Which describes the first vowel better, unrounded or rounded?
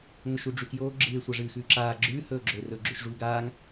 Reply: rounded